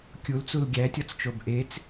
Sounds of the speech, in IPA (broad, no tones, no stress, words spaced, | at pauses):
kʲult͡sul ɡʲætʲɒt͡st͡ʃob ʔet͡s